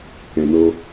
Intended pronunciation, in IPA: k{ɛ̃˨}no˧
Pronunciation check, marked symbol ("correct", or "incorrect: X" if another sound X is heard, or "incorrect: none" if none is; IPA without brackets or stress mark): correct